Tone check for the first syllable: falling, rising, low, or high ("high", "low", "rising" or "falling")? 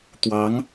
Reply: rising